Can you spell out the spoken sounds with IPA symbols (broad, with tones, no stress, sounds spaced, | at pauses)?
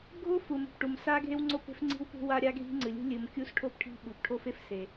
ɡʱ o˥ f u˩ m ṳ˩ p ʈ u˩ m s a˥ ɡʱ e˥ w ŋ͡ǀ o˥ p e̤˥ f ŋ͡ǀ i̤˥ w p ṳ˥ w a˥ ɾʲ a˥ ɡʱ i̤˥ ŋ͡ǀ ɨ˩ lʲ ṳ˥ lʲ ɨ˩ m kʲ u˥ s ʈʰ o˥ p ʈʰ i̤˥ ɓ u˩ p ʈʰ o˥ f e˥ f s e˩